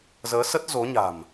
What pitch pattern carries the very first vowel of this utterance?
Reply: rising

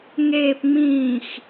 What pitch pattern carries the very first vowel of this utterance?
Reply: low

